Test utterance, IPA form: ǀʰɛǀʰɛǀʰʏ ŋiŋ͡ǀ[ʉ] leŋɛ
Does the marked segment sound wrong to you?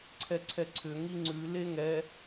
no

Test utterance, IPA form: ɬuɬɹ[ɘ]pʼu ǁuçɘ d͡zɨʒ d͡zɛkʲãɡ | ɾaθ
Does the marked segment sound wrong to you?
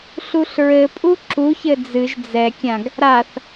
no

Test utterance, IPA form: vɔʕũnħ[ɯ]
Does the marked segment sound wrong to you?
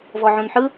no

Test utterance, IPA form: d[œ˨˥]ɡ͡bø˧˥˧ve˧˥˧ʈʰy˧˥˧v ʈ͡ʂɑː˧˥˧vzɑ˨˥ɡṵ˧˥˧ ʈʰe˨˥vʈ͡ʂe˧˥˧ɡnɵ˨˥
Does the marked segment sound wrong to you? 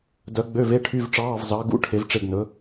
no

